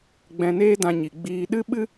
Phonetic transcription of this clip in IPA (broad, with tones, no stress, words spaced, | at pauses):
ɡ͡bɛ̃˧neː˦dã˧ɲi˨ ɡ͡biː˧ ɗɨ˦ɓɨ˦